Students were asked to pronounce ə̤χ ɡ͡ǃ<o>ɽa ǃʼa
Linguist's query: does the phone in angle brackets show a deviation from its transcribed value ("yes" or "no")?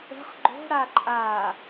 yes